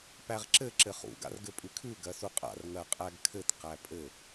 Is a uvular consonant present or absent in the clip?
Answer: present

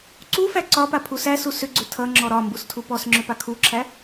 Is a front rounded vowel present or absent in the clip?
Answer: present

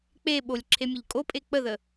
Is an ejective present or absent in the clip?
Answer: present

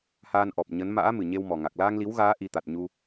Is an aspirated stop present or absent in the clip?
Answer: absent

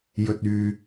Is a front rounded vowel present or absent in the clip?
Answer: present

